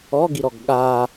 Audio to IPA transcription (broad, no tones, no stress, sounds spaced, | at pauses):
ɔ ɡ i ɾ ɔ ɡ ɠ a